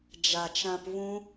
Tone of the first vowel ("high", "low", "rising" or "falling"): low